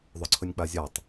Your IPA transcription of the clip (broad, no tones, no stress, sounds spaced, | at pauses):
ðˤ ɵ ǀʰ ɵ nʲ k͡p a zʲ a tˤ